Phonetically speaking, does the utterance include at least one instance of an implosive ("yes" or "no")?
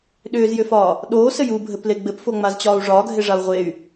yes